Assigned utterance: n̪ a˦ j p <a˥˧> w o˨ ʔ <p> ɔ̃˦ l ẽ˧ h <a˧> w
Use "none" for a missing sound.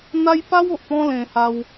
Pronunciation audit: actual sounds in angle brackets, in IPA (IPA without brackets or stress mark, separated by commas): a˦, p, a˧